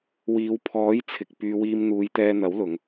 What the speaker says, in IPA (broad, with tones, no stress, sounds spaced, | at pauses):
w iː˨˧ w pʰ ɔː˨˥ j t͡sʰ ɪ˨ k̚ p yː˧ w iː˧ m n̪ uː˨˧ j t̪ ɛː˧ n̪ ɐ˨˥ w l ʊ˨˧ ŋ